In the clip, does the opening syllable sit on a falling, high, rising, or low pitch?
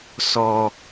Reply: low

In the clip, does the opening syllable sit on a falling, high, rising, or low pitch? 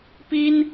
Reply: high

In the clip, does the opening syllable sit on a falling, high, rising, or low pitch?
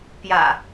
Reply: low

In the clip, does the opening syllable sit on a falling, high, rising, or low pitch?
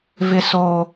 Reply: low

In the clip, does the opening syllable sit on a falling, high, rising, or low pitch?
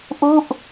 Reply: falling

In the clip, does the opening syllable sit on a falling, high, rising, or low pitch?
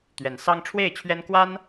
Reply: rising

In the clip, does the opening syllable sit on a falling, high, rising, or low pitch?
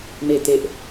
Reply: falling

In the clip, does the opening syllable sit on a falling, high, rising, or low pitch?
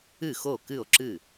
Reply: falling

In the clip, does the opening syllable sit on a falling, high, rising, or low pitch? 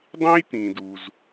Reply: high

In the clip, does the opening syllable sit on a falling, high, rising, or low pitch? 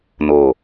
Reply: low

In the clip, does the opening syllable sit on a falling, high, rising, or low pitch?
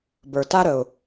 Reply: low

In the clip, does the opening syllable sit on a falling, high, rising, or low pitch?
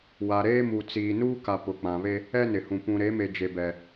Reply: low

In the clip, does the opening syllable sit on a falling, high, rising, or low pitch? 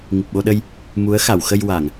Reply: low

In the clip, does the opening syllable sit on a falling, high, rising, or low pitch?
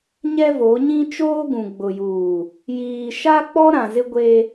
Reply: high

